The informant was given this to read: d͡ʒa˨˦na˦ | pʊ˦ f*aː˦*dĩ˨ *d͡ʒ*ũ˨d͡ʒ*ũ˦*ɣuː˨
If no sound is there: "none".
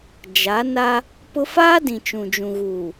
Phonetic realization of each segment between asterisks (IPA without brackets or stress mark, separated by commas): aː˦, t͡ʃ, ũ˨